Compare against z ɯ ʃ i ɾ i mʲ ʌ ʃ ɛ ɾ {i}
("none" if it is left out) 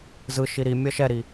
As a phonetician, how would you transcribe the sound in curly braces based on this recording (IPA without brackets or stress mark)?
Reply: i